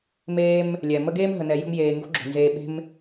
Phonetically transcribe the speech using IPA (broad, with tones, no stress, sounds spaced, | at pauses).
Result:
m eː˦ m | lʲ ɛ˩ m ə˦ ɡ eː˥ m ɦ ə˨ n ɛ˨ j ə̤˦ m j eː˨ ŋ ɡ o̤˥ ɡ͡ǁ o̤˩ n z eː˨ ɓ e̤˦ m